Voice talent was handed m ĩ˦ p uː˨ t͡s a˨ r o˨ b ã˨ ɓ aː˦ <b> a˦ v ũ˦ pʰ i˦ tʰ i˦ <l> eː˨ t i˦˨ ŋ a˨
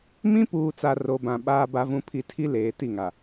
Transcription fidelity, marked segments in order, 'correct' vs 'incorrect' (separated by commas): correct, correct